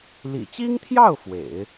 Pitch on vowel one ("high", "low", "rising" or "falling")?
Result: low